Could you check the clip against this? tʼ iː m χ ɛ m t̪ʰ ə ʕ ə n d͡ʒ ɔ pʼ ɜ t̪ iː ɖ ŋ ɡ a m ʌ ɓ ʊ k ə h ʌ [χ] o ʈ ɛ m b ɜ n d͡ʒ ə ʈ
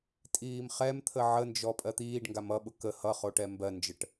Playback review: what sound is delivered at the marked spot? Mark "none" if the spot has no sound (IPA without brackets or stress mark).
χ